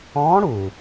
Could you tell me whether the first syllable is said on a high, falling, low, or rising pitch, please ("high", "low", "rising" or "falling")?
rising